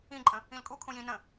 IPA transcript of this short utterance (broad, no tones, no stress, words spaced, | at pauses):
ĩǃʼə̃ | ĩlkʼu kʰũjĩ nə̃